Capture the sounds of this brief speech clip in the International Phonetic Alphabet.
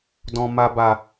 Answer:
d ɔ̃˨ m a˨ b a˨

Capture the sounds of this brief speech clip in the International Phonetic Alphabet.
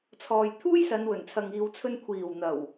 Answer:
t͡sʰ ɔː˨ j t̪ʰ uː˥ j s ɐ˨˧ n w ɵ˨˩ n t͡sʰ ɐ˨ ŋ iː˧ w t͡sʰ ɵ˥ n kʷʰ iː˨˩ w n̪ ɐ˨˩ w

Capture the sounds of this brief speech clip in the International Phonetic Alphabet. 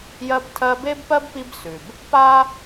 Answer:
j ɜ˦ b tʰ ɜ˦ b e˥ b p ɜ˥ b p i˦ b s ʉ˩ b | p a˥

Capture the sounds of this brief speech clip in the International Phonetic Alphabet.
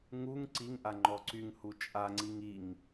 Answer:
ŋ u ŋ ǀ i ŋ ʔ a ŋ͡ǃ ɔ ǀ y ŋ h u t͡ʃʼ a ŋ͡ǀ i ŋ i ŋ

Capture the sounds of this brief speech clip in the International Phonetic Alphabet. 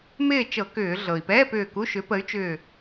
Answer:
m ɪː˥˨ t͡ʃ ɤ˧˩˧ k ʏː˧˩˧ ɮ ɤ˩ i̯ p ɛː˧˥˧ p ʏː˧˩ k u˧˥˧ ʃ ʏ˨˥ p ə˨˥ y̯ t͡ʃ ʏː˧˩

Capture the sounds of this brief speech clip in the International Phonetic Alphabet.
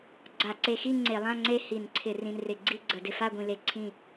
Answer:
ɡ͡ǀ a˧˩˧ ǀ e˧ x i˥˧ ŋ͡ǀ e˧˩˧ lˠ ã˥˧ ŋ͡ǀ e˥˧ h i˧˩˧ n ǀʰ ɪ˧˩˧ r ĩ˧ n r ɪ˧˩˧ ɡ͡ǀ i˥˧ ɡ͡ǀ ə˧˩˧ d ɪ˧ f a˥˧ ɡʷ ĩ˧ l e˧ ǀʰ ĩ˥˧

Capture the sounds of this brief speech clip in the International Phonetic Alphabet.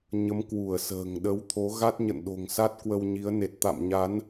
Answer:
ɲ ə˨˦ m k w u˧˩ ə̯ s ə̤ː˨˩ ŋ ɗ ə˨˦ w t̪ʰ o˨˦ ɣ a˦˥ t̚ ɲ ə̰˧˨ n ɗ o̤˨˩ ŋ s a˦˥ t̚ k w ə˧ w ɲ i˨˦ ə̯ n e˨˩ t̚ t̪ a̰˧˨ m ɲ a˨˦ n

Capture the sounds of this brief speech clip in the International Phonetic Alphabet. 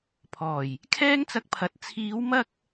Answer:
pʰ ɔː˨˩ j | kʰ ɛː˥ ŋ t͡s ɐ˧ k̚ pʰ ɐ˨˥ t̚ t͡sʰ iː˨˧ w m ɐ˧ k̚

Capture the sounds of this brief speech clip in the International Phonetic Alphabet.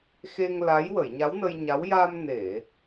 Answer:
x e˧ ŋ l a˧˥ j w ə˨˩˨ j ɲ a˧˥ w n ə˧ j ɲ a˧˥ w j a˧ m n e˨˩˨

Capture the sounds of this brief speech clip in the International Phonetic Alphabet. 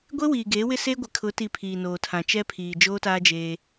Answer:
ɡʷ e˦ w iː˨ ɡ eː˨˦ w ɪ˦ s e˦ ɡʷ ɪ˨ kʰ ʊ˨˦ t i˨ pʰ iː˨ n oː˨ tʰ ã˨ t͡ʃ ɛ˦ pʰ iː˨ d͡ʒ oː˦ t aː˦ d͡ʒ eː˦

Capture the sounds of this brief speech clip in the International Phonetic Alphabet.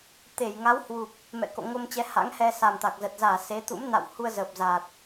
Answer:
t̪ e˧˩ j ŋ a˨˦ w h w u˨˩ p̚ | m ɛ̰˧˨ k o̰˧˨ ŋ o˧ m t͡ɕ ɛ˨˦ h a̰˧˥ ŋ h ɛ˧ s a˨˩ m t̪ a˨˩ k̚ z ə˨˩ t̚ z aː˧˩ s e˨˦ t̪ ṵ˧˥ m n a̰˧˨ w h u˧ ə̯ z əː˨˩ p̚ z aː˨˩ t̚

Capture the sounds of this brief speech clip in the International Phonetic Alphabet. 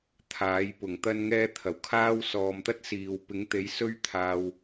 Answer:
t̪ʰ aː˨˥ j p ʊ˨˩ ŋ t̪ ɐ˥ n ŋ ɛː˥ t̪ʰ ɐ˨˩ w kʰ aː˥ w s ɔː˨ m t̪ ɐ˥ t̚ s iː˨ w p ɪ˨˥ ŋ t̪ e˨˥ j s ɵ˥ ɥ t̪ʰ aː˧ w

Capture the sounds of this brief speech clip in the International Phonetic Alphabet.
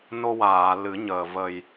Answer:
n o˧ w aː˨˩˨ l ɨ˨˩˦ ɲ əː˨˩ v ə˨˩ j

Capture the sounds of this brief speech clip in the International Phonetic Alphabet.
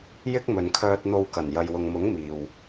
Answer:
j ɪ˥ k̚ m ɵ˨ n kʰ œː˧ t̚ n̪ o˧ w k ɐ˨˩ n j ɐ˨ j w ʊ˨ ŋ m ʊ˨˥ ŋ m iː˨ w

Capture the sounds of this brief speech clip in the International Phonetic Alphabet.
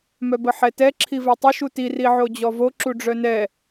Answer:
m œ b ə ħ ɛ t ɛ ǁʰ i v ɛ tˤ ə ʃ u t i r i ʕ o d͡ʑ ɔ v o ǁ u ɖ͡ʐ œ n ɛ

